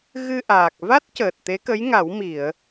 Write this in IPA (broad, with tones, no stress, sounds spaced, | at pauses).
ɣ ɨ˧ ʔ aː˨˩ k̚ v a˦˥ t̚ c əː˨˩ t̚ t̪ e˧˥ k ə˧˥ j ŋ a˨˩˦ w m i˨˩˨ ə̯